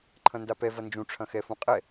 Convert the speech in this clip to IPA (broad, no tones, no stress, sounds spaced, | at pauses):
ǃʰ ɐ̃ n d a p ɛ v ɐ n d͡ʒ ũ ʈ͡ʂʰ ɐ̃ x ɛ f ũ qʼ ɛ